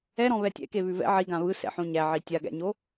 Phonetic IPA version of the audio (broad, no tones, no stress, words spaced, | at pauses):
ɛɾɔ̃βɛ tʲɛ̰keβʉ vɛ̰ ʕiɡã βɯsɛ̰ħõ ɲæʕi tʲaɡæ̰ɲo